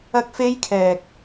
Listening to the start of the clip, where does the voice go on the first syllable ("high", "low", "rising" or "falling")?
high